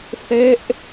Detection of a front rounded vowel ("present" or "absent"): absent